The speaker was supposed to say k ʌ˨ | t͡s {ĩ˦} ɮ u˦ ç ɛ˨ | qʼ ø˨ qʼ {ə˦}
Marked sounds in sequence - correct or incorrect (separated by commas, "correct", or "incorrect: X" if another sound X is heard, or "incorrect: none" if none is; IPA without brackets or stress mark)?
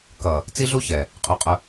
incorrect: i˦, incorrect: ʊ˦